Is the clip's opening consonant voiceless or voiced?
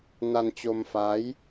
voiced